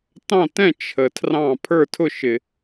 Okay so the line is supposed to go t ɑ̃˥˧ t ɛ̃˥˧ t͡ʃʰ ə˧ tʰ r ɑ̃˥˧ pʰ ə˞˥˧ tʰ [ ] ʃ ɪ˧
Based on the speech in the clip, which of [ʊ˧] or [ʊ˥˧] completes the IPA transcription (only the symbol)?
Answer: ʊ˥˧